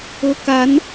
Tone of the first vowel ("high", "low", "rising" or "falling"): rising